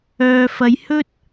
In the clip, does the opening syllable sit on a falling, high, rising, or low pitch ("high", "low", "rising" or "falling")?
low